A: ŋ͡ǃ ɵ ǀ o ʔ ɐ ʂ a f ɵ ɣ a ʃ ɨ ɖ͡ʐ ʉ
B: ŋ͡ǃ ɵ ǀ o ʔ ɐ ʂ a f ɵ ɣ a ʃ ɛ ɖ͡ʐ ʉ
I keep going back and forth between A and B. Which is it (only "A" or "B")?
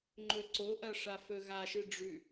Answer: A